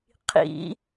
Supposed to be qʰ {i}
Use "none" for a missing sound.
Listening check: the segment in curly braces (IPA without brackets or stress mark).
ḭ